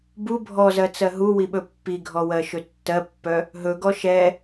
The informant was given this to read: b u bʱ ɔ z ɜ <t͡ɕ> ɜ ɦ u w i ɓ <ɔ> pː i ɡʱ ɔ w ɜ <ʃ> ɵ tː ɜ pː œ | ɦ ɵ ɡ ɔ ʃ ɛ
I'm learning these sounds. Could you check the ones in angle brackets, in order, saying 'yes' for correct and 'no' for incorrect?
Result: no, no, yes

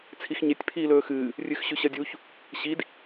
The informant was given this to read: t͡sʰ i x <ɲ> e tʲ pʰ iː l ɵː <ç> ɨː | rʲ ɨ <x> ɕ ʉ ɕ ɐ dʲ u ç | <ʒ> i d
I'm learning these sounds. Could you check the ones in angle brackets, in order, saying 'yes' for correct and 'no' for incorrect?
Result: yes, no, yes, no

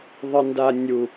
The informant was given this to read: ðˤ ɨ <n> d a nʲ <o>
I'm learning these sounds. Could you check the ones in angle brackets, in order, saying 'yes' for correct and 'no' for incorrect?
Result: yes, no

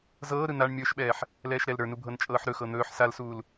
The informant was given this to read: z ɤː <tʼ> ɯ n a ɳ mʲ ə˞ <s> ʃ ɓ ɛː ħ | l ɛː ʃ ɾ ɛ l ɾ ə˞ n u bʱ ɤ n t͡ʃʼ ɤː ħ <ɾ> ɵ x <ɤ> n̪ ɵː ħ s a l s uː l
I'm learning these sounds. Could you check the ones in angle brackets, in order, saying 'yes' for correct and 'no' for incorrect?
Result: no, no, yes, yes

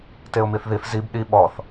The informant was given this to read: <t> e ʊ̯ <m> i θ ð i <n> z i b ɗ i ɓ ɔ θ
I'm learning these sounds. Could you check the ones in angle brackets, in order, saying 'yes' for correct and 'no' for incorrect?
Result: yes, yes, no

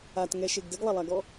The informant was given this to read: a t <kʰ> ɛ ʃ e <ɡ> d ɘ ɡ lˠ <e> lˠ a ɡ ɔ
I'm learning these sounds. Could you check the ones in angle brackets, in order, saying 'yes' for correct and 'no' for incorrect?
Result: no, yes, no

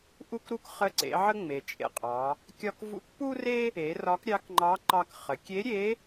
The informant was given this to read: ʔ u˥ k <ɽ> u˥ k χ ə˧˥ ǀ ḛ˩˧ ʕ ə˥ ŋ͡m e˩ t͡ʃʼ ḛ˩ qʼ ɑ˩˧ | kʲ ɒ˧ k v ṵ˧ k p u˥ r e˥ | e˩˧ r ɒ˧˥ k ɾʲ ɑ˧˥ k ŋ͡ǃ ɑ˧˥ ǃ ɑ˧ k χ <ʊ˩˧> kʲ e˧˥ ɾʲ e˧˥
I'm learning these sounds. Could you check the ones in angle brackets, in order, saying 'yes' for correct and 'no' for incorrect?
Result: no, no

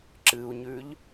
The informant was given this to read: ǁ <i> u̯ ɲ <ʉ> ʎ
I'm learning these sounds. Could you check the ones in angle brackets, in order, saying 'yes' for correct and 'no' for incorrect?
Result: no, yes

